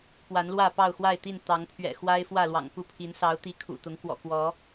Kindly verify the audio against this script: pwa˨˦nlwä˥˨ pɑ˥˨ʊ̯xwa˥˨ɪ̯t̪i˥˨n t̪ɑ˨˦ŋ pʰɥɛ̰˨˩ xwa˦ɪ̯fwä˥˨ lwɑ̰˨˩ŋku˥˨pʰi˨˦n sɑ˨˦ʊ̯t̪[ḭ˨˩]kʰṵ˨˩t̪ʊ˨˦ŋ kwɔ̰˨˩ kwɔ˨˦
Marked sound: incorrect: i˨˦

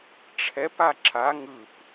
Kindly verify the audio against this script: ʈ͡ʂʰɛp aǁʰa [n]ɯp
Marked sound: incorrect: ŋ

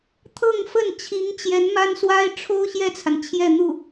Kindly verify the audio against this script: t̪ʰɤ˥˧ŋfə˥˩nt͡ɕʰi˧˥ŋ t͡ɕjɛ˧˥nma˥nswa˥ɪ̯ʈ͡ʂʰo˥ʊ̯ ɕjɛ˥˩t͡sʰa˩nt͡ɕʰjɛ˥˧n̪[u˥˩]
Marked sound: correct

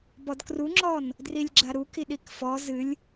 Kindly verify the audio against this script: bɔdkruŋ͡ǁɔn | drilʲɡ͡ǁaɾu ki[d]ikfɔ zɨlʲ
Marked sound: incorrect: ɗ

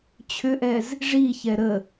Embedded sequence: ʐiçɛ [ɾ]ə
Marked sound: correct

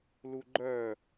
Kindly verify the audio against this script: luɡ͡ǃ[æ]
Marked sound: incorrect: œ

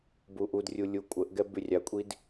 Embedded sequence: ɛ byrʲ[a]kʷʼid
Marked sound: correct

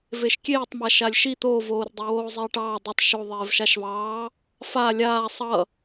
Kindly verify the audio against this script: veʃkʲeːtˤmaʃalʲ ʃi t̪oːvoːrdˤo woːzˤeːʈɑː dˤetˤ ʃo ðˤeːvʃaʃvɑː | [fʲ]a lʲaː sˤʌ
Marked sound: incorrect: f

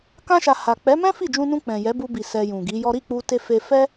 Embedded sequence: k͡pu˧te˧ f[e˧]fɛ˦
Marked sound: correct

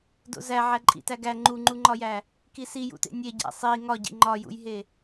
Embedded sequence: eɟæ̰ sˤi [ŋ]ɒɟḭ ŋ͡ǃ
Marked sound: correct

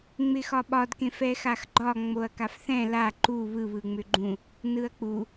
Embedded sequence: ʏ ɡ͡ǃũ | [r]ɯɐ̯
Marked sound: incorrect: n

